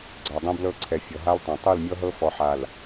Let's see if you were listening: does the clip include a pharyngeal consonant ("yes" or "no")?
yes